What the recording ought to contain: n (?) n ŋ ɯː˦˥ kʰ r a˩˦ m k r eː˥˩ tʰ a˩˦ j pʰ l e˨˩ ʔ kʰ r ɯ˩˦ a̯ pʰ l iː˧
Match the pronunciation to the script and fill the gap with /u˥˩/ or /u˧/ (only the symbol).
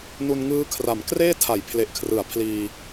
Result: u˧